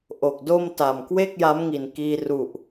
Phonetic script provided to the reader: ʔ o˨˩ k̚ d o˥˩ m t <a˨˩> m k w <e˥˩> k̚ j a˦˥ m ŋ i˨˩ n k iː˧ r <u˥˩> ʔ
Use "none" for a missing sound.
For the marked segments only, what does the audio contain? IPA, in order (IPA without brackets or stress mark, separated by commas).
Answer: a˨˩, e˥˩, u˨˩